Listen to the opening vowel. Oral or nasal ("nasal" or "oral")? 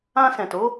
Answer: nasal